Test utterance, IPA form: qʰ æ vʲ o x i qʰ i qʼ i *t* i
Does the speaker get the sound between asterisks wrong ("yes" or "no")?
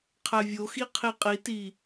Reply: no